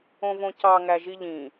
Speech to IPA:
õ v õ c ɑ ŋ æ ʒ i ʎ ĩ

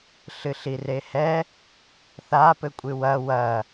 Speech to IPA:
ɬ ɨ ɬ i r e h ɛ | θ a p ɘ kʷʼ ɨ w ɐ w ɐ

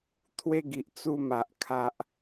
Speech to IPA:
t̪ʰ w e˧ ɡ i˨ ʔ t͡s u˧ m a˨ ʔ kʰ a˨ ʔ

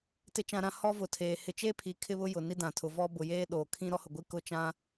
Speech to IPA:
t ɪ˨ t͡ʃ ã˨ ɾ ã˨ h ɔ˦ v ʊ˨ tʰ eː˨ h ɪ˨ t͡ʃ e˦ pʰ i˨ kʰ ɪ˦ β ʊ˦ j ʊ˨ n i˦ d ã˨ tʰ ʊ˨ v ɔ˦ b ʊ˨ j eː˦ ɗ oː˨ kʰ ĩ˦ ɾ ɔ˦ h ʊ˨ ɡʷ i˦ k ʊ˦˨ t͡ʃ ã˦

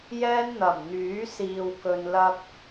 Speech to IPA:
j ɛː˥ n n̪ ɐ˨˩ m n̪ yː˨˥ s iː˨ w k ɵ˨ n l ɐ˧ k̚

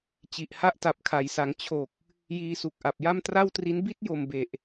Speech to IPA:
t͡ɕ i˨˩ ʔ h a˥˩ ʔ t a˨˩ p̚ kʰ a˩˦ j s a˩˦ ŋ t͡ɕʰ o˨˩ k̚ | j iː˧ s u˨˩ k̚ ʔ a˨˩ p̚ j a˥˩ m t r a˥˩ w t r i˦˥ n b i˥˩ t̚ j o˨˩ m b e˨˩ ʔ

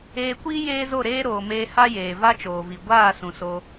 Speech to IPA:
eː˧ kʷ iː˦ j eː˦ z o˦˨ ɾ eː˦ ɾ oː˨ m eː˧ h a˦ j eː˨ v a˦ t͡ʃ oː˨ v i˨ ɡʷ aː˦˨ s ũ˨ s o˧

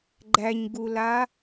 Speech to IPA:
ɡ͡ǃ æ ɲ ɡ u l a

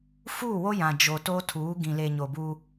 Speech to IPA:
f uː˦˨ w o˦ j ã˨ d͡ʒ o˨ t o˦ tʰ uː˨˦ ɡ ĩ˨ l e˨ ɲ o˨ b u˦

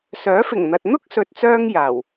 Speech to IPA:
s œː˨˥ f ɪ˨˩ ŋ n̪ ɐ˨ t̚ n̪ ʊ˥ k̚ s ɵ˨ t̚ t͡s œː˧ ŋ j aː˨˩ w

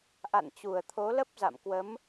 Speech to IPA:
ʔ a̰˧˨ n t͡ɕ u˨˩ ə̯ t̪ʰ o˨˦ l ə˦˥ p̚ z a̰˧˨ m k w ə˨˦ m

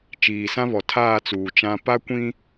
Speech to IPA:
t͡ʃ iː˨ s ã˦ β ɔ˨ tʰ aː˦˨ t͡s uː˨ t͡ʃ ã˦ p a˦ kʷ ĩ˦

